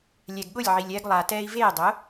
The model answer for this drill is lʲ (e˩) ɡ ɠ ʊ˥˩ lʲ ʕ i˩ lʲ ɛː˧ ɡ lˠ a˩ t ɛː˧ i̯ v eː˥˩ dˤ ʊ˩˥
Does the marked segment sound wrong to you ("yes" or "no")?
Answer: yes